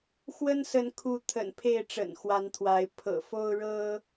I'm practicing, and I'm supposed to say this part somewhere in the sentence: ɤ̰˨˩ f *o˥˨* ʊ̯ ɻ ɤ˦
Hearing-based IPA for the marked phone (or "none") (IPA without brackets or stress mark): o˦